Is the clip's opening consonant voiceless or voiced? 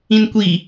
voiced